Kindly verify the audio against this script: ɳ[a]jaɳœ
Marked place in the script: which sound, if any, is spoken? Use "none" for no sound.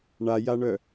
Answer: a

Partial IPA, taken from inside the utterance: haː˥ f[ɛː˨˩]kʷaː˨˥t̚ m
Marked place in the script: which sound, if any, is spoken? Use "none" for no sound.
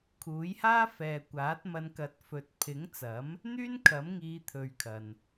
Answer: ɛː˨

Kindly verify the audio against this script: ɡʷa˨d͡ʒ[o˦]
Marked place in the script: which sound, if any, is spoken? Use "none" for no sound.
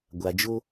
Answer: o˦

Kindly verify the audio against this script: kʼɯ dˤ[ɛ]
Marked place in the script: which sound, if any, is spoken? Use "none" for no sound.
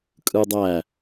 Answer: æ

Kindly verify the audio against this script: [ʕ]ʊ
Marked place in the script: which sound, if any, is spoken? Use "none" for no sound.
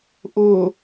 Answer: ʔ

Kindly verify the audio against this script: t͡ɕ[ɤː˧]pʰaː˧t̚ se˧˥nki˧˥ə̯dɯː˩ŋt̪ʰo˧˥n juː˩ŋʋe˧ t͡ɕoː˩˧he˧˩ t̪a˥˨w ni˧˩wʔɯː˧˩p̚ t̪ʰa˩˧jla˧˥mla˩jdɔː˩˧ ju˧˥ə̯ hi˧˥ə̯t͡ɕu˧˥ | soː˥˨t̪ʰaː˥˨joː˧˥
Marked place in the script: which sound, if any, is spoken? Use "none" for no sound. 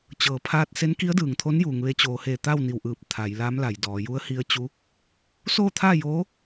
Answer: ɤː˩˧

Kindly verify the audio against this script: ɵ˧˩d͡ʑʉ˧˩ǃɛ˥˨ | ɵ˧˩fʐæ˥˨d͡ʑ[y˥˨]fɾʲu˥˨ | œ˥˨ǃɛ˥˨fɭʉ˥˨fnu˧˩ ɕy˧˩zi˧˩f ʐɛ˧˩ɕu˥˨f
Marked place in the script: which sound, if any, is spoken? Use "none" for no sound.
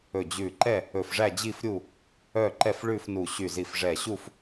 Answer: i˥˨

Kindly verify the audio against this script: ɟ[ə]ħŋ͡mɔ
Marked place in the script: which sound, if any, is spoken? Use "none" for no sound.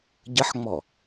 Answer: ə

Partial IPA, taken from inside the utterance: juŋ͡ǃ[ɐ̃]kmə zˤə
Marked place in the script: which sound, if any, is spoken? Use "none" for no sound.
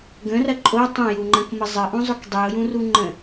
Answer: ɐ̃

